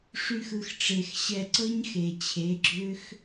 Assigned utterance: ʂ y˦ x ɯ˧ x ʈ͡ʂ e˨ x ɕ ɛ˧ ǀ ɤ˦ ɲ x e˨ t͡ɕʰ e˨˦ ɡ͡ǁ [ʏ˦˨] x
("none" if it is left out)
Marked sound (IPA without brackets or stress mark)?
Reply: ʏ˦